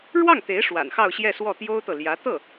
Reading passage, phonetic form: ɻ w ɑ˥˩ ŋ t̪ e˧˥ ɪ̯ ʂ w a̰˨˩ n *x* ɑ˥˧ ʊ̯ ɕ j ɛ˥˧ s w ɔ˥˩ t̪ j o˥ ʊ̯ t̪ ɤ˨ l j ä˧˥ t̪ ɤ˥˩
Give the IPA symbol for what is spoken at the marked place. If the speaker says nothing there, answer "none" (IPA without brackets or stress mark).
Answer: x